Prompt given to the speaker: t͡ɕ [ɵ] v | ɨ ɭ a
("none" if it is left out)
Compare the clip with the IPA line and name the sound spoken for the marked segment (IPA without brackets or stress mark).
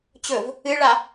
ɵ